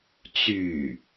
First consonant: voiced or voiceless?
voiceless